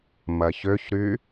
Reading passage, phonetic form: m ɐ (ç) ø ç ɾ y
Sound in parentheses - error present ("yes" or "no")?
no